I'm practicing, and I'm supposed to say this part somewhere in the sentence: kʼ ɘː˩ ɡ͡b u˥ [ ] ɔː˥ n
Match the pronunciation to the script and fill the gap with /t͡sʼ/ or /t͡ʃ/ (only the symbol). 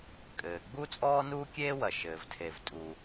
t͡sʼ